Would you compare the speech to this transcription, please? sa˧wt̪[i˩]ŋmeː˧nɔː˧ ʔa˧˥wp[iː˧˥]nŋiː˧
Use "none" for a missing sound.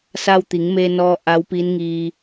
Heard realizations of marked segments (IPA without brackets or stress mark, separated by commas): i˩˧, iː˧˥